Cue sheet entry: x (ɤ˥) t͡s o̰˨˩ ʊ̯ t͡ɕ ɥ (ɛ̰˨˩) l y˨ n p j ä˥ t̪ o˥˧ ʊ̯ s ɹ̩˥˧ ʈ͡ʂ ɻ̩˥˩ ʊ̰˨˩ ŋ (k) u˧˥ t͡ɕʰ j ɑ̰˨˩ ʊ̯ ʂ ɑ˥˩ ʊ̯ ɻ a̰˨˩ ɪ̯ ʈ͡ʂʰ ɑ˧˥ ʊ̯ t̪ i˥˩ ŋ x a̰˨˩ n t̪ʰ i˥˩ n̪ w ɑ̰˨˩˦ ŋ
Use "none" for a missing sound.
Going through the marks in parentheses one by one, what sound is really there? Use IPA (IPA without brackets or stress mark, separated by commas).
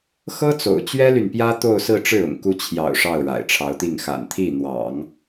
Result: ɤ˥, ɛ˥, k